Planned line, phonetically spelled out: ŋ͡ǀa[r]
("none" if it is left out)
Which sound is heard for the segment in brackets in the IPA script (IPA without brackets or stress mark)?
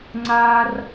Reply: r